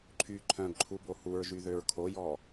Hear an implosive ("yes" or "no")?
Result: no